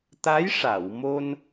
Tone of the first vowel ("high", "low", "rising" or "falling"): rising